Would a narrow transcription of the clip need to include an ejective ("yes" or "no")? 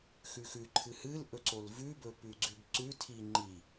no